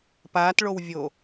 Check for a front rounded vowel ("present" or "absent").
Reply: absent